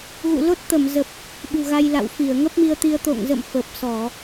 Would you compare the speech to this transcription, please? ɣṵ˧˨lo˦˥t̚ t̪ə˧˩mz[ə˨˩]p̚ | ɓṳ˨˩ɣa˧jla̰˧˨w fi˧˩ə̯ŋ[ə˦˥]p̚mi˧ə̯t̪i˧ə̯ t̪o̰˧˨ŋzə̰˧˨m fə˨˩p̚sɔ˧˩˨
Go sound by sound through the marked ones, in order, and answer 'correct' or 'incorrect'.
correct, correct

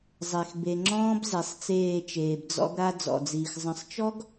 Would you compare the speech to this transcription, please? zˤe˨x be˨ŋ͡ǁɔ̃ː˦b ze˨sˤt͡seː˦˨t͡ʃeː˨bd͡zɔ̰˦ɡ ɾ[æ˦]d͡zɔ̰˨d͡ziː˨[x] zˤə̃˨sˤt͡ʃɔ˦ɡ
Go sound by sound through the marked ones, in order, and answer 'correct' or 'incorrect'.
incorrect, correct

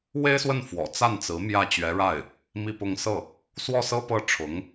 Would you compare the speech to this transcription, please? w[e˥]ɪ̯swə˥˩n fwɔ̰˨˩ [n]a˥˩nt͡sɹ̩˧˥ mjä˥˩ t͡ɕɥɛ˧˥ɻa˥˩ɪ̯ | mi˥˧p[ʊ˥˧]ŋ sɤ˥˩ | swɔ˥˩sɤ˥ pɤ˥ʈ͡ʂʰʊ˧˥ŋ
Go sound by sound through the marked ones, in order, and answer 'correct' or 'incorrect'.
correct, incorrect, correct

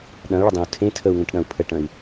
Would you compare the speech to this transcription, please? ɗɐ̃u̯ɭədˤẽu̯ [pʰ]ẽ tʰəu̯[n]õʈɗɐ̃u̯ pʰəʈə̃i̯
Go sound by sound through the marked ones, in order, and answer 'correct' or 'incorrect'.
incorrect, incorrect

